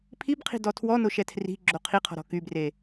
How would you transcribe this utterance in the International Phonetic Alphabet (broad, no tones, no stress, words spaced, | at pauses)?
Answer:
pʰib qʰi̤dɔtʰwɔno ʃɛtʰri̤ɡ͡ǁo qʰiqʰɔ̤ ɾɔ̤kybre